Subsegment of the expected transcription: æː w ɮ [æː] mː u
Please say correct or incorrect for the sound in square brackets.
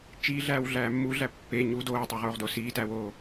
correct